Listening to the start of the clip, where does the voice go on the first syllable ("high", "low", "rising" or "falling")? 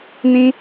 high